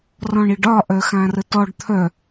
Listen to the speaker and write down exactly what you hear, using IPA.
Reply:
r ɔ̃ ɳ i ɖ ɒ ʔ œ x ã r ə t ɔ ɖ t̪ʰ œ

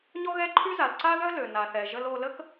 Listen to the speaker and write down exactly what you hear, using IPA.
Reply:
ɲ ɔ˥ ɣ ɛ˥ ǃʰ y˥ z a˩ l ǀ a˥ ð œ˥ l ø˩ n a˩ θ ɛ˩ ʒ ə˧ l o˧ l ə˥ k

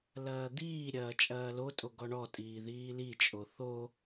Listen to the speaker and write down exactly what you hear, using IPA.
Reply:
l ɐː d̪ iː ɾʲ ɐː t͡ʃʼ ɐː l o tʼ o ɡ ɔ ɳ ɔ tʼ iː ð iː l i t͡ʃʼ o θ o

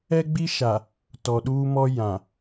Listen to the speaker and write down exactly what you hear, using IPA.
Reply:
ɛ˦ ɡ͡b i˦ ʃ a˨ | t ɔ˨ ɗ uː˦ m ɔ˦ j ã˨

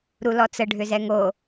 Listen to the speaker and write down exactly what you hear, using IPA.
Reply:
ɾ u l ɔ t͡s ə ɖʱ ʏ z ɛ ŋ o

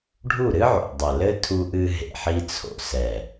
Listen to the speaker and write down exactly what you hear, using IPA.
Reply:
ɖʱ u˦˨ ɾ ɨ˦ ʕ o̰˨ dˤ ɐ˨ l ɘ˦ tʰ u˧ ʔ ɨ˧ ɦ ḛ˨ ħ i˧ t͡sʰ o̰˨ s ɛ˨

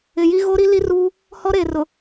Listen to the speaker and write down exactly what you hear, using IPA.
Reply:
ɪ˨ j i˦ ɣ o˦ ɾ i˦ l i˦ r uː˦ | h ɔ˦ ɾ eː˨ r ʊ˨

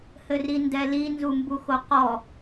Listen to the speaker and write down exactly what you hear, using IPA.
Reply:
h ɘ r i n d ɛ l i n z u m b u x o q ɔ

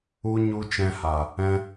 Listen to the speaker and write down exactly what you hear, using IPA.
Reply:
u˦ ɲ u˦ t͡ʃ ɛ̃˧ h a˨ | ɛ̃˦

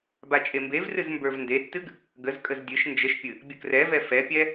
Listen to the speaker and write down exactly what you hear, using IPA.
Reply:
b a t͡ʃʼ e m b e v r ɨ z m b ə˞ v n d e tː ɨ ɡ | ɡ ə z kʼ ə z dʲ ɨ ʃ n d͡ʒ ə ʃ pʲ ɨ | bʲ ə k r ɛ v ɛ f ɛ pʲ ɛ

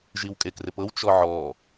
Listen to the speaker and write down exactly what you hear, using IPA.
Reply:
ʒ i w kʼ e k r ɪ p ɤ w t͡ʃ ɔ ʕ ɔ

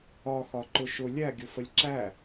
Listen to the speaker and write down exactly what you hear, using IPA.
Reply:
ɒ x ɒ ǃ ʊ ʃ ʊ lʲ æ ɡʲ ʊ f ə lʲ ǁ æ

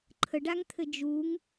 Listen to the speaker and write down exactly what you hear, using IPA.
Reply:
ǃʰ ə ɖ a ŋ t̪ʰ ɘ d͡ʒ u ŋ

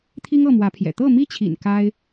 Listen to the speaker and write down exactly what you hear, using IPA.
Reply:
t̪ʰ i˦ ŋ ɤ˥˨ m w ä˨˦ pʰ j ɛ̰˨˩ t̪ ɤ˥˨ m i˦ t͡ɕʰ ḭ˨˩ n k a˦ ɪ̯

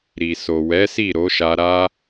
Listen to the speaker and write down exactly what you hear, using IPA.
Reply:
ɾ i˨ s o˨ w ɛ˨˦ s i˦˨ ɾ o˨˦ ʃ a˧ ɾ a˧

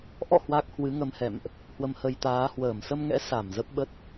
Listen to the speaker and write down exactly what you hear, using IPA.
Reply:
ʔ ɔ̰˧˨ h w a˦˥ k̚ h w ɨ˨˦ ŋ ə˧ m h ɛ̰˧˨ m ʔ | h w ə˧ m h ə˧ j t̪ aː˨˦ h w əː˧˩ m s ə˧ m ŋ ɛ̰˧˥ s a˧˩ m z ə˦˥ p̚ ɓ ə˦˥ t̚

